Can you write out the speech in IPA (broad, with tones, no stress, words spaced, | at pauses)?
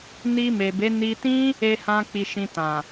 ni˧me˨be˨˦ ni˧tĩ˦ | e˧hã˧ k͡pi˧ʃĩ˧tã˨